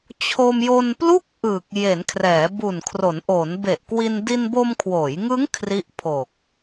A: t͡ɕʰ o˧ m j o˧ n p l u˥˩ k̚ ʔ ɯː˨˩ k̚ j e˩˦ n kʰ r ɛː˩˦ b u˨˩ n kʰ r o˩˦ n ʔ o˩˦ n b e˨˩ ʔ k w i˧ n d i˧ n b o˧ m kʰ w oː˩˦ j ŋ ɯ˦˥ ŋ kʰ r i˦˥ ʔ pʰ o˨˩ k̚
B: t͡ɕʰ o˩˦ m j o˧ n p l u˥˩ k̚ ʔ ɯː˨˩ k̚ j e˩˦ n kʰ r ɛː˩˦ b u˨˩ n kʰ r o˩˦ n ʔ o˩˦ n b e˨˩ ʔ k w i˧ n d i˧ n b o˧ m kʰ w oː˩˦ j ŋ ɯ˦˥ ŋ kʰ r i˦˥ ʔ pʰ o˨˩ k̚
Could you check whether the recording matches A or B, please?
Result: A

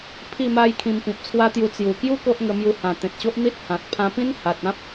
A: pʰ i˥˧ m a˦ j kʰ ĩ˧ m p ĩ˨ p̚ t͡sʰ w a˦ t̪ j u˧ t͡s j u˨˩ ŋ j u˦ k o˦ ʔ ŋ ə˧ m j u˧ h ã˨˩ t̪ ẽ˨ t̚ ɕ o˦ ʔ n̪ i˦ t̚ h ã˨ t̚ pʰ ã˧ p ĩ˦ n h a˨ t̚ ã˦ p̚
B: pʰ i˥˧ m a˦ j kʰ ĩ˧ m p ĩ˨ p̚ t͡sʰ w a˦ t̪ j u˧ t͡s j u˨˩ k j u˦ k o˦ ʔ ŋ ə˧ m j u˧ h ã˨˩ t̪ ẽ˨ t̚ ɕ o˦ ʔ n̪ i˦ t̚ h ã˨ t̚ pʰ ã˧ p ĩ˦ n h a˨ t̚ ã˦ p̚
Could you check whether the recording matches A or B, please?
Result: B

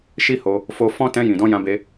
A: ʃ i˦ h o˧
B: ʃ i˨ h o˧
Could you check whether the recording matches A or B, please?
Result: A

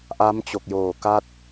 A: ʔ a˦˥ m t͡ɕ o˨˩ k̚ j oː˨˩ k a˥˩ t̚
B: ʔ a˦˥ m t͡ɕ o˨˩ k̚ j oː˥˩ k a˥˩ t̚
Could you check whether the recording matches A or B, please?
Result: A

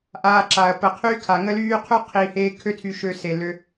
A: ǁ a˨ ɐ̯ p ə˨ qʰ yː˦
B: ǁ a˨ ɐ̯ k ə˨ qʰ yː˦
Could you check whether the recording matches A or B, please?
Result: A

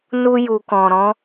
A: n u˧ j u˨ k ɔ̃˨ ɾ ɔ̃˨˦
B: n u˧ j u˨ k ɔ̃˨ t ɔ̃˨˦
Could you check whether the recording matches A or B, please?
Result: A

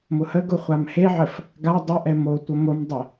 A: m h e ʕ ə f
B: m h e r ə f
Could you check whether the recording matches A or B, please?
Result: A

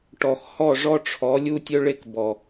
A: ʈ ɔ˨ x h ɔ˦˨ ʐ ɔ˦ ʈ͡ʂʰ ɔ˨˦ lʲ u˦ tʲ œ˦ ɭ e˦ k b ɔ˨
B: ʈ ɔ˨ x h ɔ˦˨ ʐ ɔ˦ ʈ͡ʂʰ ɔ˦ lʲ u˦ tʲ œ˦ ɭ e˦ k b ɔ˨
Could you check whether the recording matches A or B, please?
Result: A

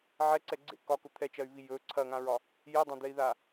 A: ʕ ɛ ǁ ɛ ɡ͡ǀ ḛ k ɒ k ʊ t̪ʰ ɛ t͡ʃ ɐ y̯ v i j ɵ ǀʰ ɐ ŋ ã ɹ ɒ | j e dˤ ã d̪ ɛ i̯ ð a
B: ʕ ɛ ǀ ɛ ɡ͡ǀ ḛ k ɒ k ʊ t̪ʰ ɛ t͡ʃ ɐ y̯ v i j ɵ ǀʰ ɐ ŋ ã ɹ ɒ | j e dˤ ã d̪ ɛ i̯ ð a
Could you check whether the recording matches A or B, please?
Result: B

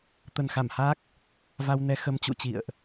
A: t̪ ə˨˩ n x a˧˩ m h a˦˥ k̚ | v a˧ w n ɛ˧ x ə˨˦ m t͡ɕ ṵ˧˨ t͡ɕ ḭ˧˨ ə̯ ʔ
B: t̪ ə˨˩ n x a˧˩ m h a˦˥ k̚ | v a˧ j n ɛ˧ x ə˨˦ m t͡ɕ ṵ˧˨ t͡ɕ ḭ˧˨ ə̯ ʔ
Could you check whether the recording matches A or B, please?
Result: A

